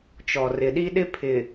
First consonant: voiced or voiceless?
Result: voiceless